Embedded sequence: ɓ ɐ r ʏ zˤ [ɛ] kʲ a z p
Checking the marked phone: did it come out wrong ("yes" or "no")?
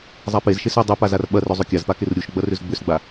yes